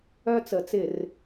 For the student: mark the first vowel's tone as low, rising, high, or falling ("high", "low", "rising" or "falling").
high